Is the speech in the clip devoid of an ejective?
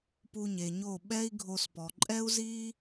no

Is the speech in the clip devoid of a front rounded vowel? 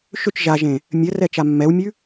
no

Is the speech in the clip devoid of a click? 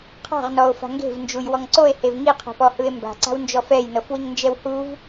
no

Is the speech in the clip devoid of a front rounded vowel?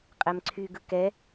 no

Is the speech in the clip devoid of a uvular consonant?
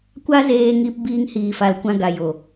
yes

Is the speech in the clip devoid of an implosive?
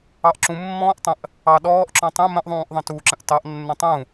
no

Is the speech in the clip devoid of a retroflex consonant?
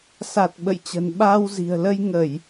yes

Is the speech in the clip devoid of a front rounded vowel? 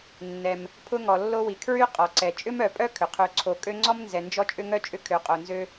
no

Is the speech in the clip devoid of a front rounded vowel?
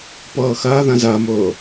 yes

